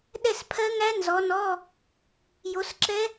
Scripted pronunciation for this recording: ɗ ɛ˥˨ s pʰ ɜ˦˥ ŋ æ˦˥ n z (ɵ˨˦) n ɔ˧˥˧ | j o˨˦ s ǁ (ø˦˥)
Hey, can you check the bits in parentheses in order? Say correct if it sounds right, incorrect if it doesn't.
incorrect: ɔ˨˦, incorrect: ɛ˦˥

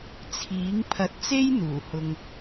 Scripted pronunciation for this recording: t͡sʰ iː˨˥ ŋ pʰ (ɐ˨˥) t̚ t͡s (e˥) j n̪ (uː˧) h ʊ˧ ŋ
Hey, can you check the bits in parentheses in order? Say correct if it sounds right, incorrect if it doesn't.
correct, correct, incorrect: uː˨˩

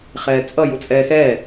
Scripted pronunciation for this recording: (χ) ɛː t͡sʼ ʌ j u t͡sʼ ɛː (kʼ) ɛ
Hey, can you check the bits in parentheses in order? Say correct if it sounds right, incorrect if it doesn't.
correct, incorrect: x

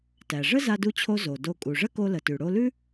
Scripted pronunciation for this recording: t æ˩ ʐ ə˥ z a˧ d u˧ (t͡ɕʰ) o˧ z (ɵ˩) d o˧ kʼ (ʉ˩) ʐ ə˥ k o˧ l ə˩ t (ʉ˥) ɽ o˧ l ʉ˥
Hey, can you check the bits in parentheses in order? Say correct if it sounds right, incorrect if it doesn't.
correct, incorrect: o˩, incorrect: u˩, incorrect: ʉ˩

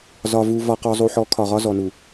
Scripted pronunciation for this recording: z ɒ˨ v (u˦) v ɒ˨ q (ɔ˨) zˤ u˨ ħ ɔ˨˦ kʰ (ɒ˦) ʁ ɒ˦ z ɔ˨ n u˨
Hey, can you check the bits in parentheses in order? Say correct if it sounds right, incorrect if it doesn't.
incorrect: u˨, correct, incorrect: ɒ˨

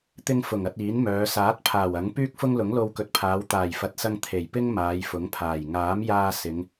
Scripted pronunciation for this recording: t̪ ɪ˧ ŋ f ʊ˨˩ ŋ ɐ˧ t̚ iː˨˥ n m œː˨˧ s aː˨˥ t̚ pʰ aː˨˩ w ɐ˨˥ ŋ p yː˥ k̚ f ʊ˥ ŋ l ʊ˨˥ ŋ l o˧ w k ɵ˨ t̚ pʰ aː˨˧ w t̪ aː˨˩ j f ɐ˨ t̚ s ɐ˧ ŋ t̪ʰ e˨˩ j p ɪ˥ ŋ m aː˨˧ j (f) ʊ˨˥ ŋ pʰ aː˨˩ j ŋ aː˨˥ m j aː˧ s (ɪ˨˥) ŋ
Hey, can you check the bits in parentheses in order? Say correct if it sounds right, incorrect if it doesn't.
correct, incorrect: ɪ˨˧

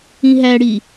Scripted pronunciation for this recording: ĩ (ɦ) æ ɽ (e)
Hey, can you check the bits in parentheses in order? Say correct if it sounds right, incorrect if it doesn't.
correct, incorrect: i

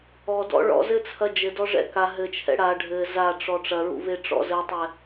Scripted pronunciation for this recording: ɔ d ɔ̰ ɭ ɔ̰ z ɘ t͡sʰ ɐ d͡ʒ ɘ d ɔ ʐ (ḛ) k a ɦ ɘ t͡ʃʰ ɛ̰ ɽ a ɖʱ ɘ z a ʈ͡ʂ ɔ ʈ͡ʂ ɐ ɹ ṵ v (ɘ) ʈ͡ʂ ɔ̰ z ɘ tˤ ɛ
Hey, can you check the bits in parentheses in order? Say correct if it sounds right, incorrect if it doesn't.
incorrect: ɛ̰, incorrect: e

